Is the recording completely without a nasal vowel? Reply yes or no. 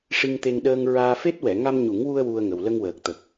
yes